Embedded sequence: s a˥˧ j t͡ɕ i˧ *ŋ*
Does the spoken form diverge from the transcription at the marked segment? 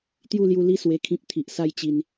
yes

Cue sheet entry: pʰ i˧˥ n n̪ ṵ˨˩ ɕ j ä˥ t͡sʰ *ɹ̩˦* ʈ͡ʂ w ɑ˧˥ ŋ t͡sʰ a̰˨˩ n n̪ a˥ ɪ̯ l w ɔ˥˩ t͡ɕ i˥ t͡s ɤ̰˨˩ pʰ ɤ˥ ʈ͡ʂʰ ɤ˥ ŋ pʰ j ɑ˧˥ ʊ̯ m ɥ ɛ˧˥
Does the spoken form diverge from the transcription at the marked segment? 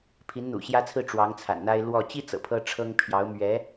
yes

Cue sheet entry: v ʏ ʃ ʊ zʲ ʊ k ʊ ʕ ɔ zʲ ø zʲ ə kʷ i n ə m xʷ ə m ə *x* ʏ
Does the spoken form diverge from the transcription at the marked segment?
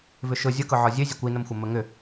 yes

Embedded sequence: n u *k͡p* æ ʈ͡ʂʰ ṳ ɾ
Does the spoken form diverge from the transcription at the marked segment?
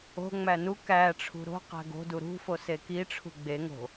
yes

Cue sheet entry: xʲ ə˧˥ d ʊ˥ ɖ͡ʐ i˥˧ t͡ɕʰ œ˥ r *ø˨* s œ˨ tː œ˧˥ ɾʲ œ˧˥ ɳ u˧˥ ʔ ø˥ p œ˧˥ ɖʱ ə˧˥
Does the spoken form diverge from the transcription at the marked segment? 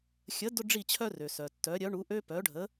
no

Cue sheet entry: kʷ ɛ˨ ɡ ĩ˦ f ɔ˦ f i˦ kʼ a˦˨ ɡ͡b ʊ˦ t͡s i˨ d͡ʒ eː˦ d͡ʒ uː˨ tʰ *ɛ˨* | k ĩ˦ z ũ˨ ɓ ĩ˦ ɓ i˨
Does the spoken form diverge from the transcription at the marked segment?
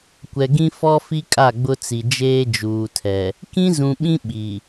no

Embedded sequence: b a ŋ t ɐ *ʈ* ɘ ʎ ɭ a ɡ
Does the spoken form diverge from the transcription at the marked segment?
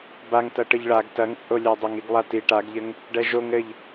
no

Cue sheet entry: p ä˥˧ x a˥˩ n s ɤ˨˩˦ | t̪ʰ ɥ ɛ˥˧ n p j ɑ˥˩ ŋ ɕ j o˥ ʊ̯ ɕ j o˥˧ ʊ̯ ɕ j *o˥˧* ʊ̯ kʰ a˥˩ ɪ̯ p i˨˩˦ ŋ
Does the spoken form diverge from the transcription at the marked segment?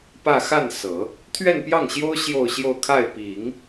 no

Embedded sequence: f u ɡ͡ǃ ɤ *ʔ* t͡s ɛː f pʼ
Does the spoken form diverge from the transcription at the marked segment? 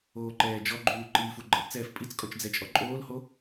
no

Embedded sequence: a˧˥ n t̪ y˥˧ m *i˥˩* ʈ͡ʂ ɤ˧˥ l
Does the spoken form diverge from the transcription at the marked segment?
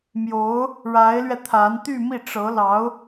no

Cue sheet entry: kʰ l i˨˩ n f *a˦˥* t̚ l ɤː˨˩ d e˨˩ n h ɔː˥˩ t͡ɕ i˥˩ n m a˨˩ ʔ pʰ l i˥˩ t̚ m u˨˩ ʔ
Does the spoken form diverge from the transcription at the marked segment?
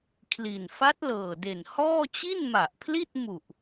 no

